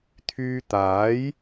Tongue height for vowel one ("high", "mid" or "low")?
high